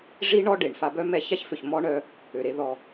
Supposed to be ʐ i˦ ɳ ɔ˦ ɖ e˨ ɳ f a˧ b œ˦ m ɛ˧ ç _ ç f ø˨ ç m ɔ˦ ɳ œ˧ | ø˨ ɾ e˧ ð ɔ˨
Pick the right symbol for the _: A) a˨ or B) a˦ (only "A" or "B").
B